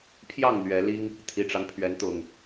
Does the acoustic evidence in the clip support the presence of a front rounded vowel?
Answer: no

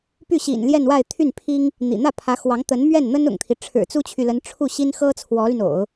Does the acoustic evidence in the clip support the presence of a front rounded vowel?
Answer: yes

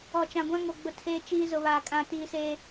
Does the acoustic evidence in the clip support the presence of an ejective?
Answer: yes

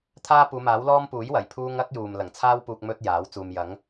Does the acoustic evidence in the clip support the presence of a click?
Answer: no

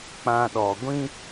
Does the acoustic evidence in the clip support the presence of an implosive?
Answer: yes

